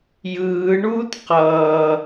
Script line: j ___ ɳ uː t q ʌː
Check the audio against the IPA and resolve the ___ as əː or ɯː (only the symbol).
ɯː